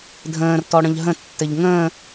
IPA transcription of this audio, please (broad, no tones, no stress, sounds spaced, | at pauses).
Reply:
dʱ ə̃ː r t ɔ ɽ ə̃ ʎ ɦ ə̃ tː ɘ ʎ ŋ ə̃ː